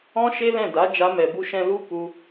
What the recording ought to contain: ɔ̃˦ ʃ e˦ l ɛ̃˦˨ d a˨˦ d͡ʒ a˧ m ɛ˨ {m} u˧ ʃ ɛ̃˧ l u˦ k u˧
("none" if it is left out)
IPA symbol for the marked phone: b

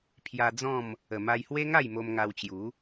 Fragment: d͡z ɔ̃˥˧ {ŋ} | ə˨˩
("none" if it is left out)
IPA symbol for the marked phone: m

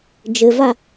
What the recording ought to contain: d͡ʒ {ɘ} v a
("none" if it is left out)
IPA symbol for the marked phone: ɘ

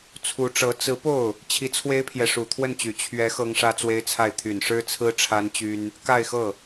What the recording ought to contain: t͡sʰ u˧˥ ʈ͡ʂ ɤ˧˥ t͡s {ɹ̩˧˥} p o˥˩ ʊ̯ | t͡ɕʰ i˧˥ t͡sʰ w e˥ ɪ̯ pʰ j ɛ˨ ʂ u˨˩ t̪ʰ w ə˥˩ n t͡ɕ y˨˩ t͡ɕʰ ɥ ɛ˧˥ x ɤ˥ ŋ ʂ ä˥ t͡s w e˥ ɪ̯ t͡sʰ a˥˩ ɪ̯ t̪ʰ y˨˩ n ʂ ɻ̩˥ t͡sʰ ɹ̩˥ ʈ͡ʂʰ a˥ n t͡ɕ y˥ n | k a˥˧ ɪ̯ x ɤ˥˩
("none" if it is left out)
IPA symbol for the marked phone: ɹ̩˧˥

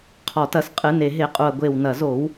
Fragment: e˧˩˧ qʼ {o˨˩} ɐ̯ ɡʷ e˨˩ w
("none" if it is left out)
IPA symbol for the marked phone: u˨˩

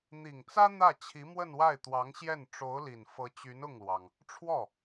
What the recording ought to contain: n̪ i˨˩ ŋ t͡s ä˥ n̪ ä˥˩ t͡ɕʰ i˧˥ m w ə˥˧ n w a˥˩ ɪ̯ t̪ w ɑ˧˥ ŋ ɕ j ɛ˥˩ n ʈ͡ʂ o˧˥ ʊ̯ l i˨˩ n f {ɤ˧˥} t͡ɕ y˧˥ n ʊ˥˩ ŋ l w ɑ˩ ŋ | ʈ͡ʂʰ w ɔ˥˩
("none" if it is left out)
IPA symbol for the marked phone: ɤ˧˥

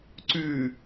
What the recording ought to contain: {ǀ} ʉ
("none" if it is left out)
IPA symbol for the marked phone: ǀ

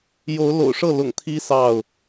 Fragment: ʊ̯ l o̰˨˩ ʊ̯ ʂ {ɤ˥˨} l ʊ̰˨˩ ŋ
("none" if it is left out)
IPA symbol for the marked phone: ɤ˥˨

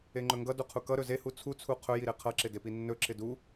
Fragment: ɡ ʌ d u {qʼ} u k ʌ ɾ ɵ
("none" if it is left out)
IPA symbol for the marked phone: qʰ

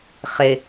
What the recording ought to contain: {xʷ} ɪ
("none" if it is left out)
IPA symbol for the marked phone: χ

